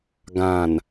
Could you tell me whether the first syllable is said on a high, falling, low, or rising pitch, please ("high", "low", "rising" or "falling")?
low